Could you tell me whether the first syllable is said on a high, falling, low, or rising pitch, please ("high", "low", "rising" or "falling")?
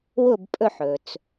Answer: falling